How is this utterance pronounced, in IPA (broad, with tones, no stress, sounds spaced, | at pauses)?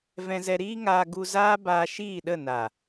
v ɛ̃˧ z ɛ˧ ɾ iː˦ ŋ aː˧ ɡ u˧ z aː˦ b aː˧ ʃ iː˦˨ ɗ ə˦˨ n a˨